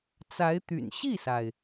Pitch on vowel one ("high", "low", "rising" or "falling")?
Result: rising